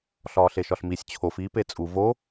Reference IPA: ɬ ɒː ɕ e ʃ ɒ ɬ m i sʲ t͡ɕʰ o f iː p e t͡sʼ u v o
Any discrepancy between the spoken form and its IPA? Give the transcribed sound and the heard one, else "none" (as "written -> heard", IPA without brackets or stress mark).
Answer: ɕ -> ɬ